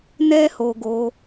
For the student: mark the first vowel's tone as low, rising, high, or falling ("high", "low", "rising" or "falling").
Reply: high